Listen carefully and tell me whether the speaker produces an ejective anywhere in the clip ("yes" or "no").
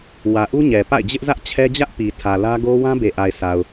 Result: no